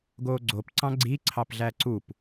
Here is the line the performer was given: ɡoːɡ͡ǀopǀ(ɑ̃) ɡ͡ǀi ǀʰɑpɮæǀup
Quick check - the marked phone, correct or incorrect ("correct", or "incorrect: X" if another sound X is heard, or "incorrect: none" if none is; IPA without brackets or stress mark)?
correct